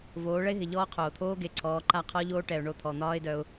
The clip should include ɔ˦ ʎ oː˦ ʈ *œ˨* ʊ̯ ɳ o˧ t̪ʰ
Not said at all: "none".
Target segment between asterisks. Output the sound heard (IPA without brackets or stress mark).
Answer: ɛ˨